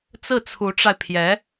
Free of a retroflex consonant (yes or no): no